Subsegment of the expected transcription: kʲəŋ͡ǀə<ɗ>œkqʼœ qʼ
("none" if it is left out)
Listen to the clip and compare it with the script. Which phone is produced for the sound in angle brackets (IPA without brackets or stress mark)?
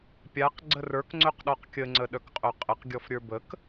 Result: ɗ